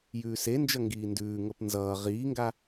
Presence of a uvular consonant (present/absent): present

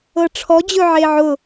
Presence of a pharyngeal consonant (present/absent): present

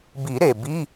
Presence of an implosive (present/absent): absent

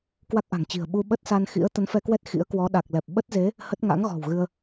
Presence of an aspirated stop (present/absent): absent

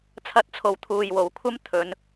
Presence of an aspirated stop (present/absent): present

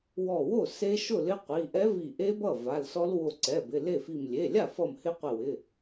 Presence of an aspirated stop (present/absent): absent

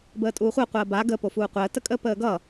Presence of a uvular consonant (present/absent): present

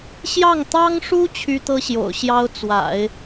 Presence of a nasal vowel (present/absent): absent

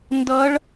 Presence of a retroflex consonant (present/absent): present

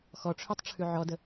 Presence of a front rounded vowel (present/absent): present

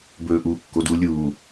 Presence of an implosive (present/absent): absent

